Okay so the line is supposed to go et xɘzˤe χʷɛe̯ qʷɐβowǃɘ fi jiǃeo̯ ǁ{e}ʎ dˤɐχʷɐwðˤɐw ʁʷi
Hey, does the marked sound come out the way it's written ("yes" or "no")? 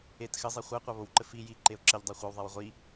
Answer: no